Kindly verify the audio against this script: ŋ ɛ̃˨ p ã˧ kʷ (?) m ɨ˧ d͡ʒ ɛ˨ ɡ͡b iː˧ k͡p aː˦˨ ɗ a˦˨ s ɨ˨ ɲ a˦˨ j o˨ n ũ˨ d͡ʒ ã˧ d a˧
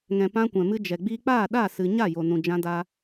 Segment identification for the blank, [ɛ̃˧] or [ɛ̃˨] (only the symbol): ɛ̃˨